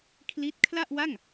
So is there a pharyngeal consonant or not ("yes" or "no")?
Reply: no